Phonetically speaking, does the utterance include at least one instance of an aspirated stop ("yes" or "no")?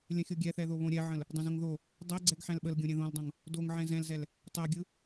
no